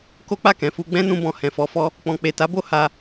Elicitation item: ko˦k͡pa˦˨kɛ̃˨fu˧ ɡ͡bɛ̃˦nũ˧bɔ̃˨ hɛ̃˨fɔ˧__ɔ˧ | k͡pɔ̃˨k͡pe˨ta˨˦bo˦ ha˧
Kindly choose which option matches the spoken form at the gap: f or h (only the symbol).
f